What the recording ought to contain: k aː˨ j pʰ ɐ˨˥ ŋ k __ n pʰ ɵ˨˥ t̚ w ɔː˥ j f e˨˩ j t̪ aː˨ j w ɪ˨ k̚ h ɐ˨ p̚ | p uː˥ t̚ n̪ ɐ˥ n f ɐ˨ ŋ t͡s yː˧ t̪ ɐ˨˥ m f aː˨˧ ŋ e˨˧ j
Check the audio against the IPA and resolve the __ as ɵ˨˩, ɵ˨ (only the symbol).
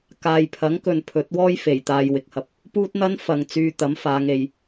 ɵ˨